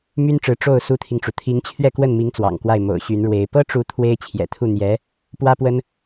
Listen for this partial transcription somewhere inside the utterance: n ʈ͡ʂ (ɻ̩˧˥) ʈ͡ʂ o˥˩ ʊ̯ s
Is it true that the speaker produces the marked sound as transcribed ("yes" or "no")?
yes